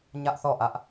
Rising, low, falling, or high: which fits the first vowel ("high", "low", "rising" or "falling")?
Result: high